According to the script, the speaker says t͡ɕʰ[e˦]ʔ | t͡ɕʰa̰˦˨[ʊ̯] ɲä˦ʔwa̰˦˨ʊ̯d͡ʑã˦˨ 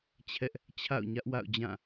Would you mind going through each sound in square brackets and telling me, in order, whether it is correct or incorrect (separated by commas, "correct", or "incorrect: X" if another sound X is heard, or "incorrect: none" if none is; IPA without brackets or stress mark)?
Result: incorrect: ɛ˦, correct